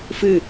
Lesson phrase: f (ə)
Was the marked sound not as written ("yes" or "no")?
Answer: yes